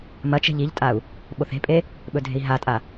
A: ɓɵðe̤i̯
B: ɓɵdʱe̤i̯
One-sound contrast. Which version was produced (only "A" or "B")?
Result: B